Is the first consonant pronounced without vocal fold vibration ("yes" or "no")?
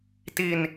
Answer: yes